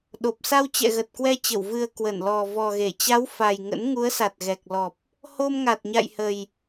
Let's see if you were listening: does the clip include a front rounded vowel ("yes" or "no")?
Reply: no